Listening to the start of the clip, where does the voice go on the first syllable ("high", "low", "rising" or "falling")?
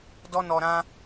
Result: high